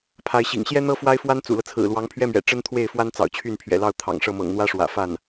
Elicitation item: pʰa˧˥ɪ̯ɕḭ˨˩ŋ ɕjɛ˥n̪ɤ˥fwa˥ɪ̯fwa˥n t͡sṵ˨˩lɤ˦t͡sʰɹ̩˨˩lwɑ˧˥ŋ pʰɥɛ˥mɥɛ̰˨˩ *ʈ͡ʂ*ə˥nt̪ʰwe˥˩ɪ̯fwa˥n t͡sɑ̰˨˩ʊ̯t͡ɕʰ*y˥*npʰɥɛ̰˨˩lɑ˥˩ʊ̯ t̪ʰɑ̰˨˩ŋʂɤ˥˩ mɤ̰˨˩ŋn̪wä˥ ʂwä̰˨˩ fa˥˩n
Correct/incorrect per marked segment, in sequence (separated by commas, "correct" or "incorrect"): correct, incorrect